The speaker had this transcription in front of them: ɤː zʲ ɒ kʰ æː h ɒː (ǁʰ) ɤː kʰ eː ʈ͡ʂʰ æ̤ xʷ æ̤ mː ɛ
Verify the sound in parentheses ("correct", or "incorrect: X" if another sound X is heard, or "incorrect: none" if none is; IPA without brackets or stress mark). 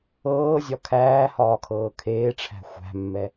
incorrect: kʰ